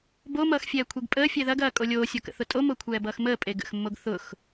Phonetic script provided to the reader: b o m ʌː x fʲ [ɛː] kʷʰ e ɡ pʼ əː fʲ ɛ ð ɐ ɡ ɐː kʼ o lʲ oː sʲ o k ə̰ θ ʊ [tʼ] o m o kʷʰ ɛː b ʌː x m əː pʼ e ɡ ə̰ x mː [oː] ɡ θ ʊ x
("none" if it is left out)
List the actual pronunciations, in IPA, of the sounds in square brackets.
ɛː, tʼ, o

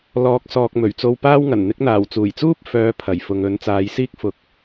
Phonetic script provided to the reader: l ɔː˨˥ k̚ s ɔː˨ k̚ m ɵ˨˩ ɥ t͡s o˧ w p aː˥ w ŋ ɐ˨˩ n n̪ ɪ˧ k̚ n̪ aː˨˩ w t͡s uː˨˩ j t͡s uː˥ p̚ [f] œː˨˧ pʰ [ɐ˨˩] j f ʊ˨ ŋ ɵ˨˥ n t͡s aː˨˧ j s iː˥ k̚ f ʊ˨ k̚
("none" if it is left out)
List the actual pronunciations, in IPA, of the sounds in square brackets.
f, ɐ˨˩

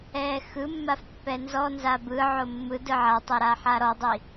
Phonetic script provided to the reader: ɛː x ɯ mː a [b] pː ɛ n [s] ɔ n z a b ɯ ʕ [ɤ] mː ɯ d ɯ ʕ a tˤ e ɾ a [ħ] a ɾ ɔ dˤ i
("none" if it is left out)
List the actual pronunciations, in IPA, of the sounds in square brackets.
f, z, o, ħ

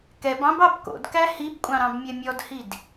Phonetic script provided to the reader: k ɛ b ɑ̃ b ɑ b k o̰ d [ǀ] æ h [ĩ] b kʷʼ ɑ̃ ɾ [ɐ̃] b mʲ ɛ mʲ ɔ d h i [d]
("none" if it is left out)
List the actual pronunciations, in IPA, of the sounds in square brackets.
k, i, ɑ̃, d

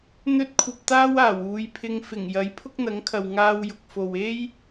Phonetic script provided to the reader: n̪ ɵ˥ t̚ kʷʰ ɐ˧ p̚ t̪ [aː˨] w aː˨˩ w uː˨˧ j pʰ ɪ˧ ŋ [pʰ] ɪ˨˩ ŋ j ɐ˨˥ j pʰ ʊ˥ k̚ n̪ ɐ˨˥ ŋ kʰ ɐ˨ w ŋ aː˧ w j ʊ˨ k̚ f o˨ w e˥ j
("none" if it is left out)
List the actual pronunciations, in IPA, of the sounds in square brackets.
aː˥, f

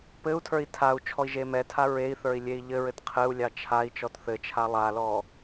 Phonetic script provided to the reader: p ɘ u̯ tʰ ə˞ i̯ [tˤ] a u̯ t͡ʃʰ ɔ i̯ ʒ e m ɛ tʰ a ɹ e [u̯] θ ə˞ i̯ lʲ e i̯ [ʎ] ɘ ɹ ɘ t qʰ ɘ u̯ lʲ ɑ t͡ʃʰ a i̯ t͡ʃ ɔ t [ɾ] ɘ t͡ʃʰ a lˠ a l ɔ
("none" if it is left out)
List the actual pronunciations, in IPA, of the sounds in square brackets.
tʰ, i̯, ʎ, θ

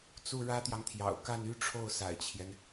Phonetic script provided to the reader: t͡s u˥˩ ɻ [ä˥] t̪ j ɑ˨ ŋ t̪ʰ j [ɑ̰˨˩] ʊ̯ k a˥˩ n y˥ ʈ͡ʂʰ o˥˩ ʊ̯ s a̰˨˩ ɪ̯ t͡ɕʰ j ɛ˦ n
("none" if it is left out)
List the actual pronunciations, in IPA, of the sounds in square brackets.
ä˥, ɑ̰˨˩

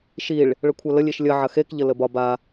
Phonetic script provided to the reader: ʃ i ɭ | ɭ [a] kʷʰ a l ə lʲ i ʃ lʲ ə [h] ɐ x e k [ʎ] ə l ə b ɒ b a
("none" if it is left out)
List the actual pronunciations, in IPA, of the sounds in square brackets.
ə, ʕ, ʎ

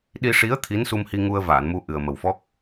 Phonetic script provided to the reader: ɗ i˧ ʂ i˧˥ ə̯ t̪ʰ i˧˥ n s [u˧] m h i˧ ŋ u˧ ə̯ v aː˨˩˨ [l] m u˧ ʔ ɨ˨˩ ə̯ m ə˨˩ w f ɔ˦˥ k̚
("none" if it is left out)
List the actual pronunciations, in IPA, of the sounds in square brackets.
u˧, n

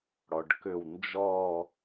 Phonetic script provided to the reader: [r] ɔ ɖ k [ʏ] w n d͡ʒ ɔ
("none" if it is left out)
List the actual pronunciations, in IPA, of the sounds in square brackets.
ɽ, ʏ

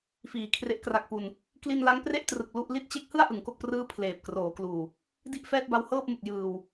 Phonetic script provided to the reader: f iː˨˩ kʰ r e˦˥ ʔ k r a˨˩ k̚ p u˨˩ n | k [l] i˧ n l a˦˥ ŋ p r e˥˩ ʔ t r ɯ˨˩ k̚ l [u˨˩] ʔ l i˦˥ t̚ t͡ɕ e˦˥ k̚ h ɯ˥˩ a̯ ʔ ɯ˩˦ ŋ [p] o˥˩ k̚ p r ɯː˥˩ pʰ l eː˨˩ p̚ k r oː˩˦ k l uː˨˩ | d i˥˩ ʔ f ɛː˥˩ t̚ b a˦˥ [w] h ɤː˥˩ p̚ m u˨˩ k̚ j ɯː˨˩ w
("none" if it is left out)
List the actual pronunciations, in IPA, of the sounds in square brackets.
l, u˥˩, k, w

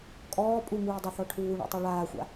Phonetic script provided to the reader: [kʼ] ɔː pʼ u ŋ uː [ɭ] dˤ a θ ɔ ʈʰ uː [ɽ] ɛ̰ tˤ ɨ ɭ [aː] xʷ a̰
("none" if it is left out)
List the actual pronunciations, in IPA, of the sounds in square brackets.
kʼ, none, ɳ, aː

